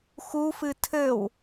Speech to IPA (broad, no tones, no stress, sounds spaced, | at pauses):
x u f ɨ tʰ ɘ w